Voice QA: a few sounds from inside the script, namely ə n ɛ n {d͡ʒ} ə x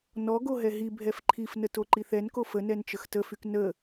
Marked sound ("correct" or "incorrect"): incorrect